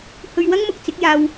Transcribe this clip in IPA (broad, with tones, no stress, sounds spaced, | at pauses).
h ɵ˧ ɥ w ɐ˥ ŋ m ʊ˧ k̚ t͡s ɪ˨˥ k̚ j aː˧ w